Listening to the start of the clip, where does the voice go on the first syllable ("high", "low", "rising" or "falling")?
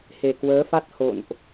low